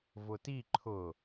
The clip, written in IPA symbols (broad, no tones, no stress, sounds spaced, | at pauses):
v ʊ t i ǃʰ ʊ